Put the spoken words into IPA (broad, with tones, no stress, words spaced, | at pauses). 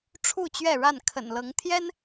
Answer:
ʈ͡ʂʰu˥˨t͡ɕɥɛ˥˨ɻa˥˨n kʰə̰˨˩nlɤ˨˦ŋ t̪ʰjɛ˦n